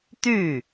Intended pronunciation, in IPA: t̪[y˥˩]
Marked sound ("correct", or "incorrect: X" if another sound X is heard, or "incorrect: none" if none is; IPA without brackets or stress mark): correct